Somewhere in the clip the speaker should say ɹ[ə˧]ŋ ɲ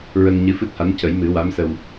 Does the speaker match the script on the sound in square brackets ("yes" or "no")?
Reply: yes